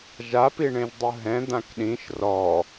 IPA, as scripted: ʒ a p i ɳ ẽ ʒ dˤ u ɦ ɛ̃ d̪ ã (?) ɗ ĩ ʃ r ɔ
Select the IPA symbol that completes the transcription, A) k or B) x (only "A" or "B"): A